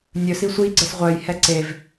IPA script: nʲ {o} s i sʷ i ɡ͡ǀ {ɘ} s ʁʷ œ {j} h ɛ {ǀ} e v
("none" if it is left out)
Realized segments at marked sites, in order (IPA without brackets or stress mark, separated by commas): ɵ, ɘ, j, ǀ